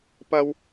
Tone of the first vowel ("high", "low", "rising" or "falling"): high